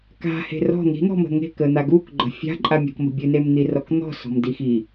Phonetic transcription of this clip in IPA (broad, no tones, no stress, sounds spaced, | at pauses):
k a̤ h e̤ r ɔ̤ n̪ i̤ n̪ ɔ̤ m ə̤ ŋ e̤ k ə n̪ a ɡ u k ɡ͡ǃ ə̤ fʲ a̤ ǃʼ a mʲ ɔ̤ k m ə̤ bʲ ɨ n e m n̪ i r ɔ k n̪ ɔ̤ s ɔ̤ m d i x i